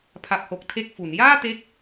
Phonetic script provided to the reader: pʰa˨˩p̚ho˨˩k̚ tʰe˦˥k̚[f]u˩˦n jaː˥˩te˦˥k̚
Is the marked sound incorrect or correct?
correct